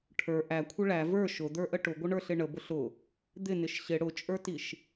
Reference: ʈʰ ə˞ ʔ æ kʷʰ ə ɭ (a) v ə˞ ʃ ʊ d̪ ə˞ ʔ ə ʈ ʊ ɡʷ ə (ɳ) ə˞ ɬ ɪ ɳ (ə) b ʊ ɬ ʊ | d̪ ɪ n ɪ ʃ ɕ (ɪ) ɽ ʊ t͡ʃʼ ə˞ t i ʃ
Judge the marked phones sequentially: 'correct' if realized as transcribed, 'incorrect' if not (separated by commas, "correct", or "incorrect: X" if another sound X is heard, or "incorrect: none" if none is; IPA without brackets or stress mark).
incorrect: æ, correct, correct, correct